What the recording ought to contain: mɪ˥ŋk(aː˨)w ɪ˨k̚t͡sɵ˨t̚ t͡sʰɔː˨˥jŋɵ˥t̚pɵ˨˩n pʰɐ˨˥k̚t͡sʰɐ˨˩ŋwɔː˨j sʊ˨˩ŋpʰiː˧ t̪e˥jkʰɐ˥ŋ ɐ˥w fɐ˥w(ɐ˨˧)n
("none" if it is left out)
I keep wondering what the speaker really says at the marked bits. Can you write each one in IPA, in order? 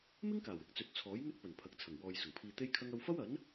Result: aː˨˩, ɐ˨˥

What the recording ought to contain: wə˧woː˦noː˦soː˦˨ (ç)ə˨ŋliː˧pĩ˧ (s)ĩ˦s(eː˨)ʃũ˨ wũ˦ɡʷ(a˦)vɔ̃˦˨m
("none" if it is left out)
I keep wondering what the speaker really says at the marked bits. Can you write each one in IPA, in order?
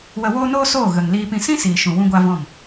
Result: ɣ, s, iː˨, a˦

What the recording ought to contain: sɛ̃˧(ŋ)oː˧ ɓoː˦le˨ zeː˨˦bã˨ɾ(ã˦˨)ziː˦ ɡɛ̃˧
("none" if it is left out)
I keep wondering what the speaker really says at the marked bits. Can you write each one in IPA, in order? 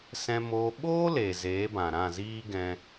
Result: m, ã˦˨

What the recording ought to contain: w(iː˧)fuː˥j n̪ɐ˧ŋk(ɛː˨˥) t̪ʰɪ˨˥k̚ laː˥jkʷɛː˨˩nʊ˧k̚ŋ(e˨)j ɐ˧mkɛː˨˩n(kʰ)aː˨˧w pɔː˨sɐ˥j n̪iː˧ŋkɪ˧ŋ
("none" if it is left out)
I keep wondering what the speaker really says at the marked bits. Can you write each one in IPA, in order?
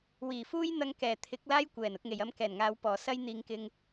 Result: iː˨˩, ɛː˨˩, e˨, ŋ

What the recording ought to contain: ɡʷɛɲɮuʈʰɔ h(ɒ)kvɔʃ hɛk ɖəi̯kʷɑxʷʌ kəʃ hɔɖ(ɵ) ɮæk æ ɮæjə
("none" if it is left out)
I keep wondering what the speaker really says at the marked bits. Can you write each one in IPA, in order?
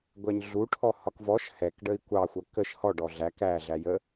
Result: ɒ, ɔ

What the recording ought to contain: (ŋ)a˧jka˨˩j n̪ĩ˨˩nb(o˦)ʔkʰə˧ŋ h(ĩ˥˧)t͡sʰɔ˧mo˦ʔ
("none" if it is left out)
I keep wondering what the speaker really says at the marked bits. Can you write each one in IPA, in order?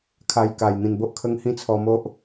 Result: kʰ, o˦, ĩ˥˧

